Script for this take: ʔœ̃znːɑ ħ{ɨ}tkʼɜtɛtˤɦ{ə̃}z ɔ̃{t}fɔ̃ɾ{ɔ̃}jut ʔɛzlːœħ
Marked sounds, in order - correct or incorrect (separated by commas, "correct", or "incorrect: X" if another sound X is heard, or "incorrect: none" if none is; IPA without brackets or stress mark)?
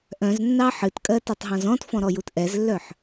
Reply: correct, incorrect: ɔ̃, correct, incorrect: ɔ